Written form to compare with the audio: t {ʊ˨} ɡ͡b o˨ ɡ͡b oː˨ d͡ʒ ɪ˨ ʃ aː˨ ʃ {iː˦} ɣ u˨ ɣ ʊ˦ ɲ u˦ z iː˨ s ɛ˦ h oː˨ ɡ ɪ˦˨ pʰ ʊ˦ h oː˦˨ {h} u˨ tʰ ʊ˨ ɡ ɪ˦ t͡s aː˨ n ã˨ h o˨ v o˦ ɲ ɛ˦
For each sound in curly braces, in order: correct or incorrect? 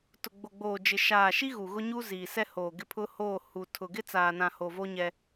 correct, incorrect: i˦, correct

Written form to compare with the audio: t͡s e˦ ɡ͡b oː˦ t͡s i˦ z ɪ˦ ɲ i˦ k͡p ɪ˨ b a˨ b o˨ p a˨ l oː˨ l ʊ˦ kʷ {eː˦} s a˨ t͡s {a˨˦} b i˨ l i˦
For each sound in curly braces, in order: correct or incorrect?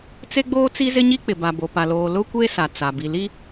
correct, incorrect: a˨

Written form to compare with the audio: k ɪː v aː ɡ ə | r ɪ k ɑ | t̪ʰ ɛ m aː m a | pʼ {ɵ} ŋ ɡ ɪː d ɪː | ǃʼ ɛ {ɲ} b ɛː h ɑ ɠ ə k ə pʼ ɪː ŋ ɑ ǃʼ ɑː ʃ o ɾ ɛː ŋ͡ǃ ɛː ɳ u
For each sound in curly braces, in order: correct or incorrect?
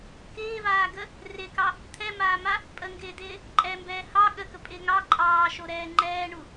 incorrect: ə, incorrect: m

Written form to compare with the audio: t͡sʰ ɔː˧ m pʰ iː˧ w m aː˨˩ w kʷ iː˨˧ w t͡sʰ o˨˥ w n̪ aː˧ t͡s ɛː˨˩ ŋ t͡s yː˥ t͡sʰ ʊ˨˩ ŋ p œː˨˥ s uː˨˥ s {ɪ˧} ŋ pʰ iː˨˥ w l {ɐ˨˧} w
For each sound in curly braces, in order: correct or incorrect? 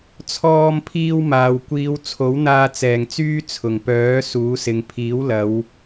incorrect: ɪ˨, correct

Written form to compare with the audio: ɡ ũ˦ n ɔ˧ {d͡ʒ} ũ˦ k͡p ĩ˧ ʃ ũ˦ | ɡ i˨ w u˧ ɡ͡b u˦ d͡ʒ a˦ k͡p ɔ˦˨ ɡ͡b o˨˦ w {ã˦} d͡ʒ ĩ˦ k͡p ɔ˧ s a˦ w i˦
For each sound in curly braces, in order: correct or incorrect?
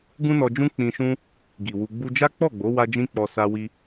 correct, incorrect: a˦

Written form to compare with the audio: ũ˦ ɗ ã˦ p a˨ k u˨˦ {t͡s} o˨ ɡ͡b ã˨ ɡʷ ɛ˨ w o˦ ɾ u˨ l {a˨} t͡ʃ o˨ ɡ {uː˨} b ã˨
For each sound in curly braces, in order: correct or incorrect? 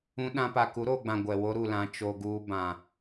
incorrect: ɾ, incorrect: ã˨, correct

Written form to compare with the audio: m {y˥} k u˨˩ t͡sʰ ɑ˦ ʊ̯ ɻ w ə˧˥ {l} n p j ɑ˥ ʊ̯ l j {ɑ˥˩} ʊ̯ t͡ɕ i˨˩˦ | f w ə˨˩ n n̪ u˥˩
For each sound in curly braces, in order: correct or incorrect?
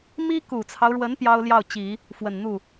incorrect: i˥, incorrect: none, correct

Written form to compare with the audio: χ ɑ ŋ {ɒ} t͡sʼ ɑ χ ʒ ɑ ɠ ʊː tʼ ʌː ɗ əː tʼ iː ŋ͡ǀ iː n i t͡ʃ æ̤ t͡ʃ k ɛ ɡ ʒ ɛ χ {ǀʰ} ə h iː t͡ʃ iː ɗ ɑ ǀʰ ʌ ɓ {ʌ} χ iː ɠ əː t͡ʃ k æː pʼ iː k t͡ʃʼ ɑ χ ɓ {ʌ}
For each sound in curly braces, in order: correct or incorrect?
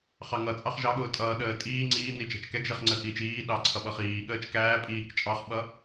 incorrect: ʌ, incorrect: ŋ͡ǀ, correct, correct

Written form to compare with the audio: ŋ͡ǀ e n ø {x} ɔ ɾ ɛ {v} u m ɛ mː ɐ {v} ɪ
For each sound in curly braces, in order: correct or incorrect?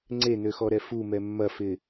correct, incorrect: f, incorrect: f

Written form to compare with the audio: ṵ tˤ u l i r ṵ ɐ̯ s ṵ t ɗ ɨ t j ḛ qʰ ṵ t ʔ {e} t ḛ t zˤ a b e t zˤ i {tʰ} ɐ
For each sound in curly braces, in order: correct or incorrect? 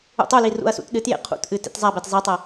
incorrect: ɨ, incorrect: tˤ

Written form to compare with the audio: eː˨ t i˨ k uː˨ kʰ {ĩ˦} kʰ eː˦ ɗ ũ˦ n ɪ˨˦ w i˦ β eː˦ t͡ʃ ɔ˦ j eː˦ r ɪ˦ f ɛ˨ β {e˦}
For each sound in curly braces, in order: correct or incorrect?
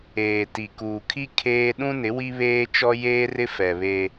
incorrect: i˦, correct

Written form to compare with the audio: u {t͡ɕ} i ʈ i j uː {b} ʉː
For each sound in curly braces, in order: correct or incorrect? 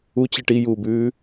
correct, correct

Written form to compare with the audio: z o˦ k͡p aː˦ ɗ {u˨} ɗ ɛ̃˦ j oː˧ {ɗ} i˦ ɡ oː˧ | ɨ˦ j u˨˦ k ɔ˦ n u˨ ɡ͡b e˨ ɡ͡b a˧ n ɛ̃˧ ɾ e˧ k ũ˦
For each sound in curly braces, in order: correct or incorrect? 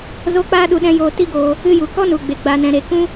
incorrect: u˧, incorrect: t

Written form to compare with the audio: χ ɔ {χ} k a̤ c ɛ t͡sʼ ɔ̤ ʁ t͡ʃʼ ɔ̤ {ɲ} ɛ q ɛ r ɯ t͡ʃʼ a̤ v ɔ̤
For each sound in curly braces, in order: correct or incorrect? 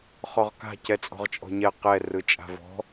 incorrect: ʁ, correct

